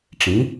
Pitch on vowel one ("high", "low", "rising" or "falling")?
rising